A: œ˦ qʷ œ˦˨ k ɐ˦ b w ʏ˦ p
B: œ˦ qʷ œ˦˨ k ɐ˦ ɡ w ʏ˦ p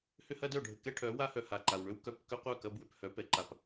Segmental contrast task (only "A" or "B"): A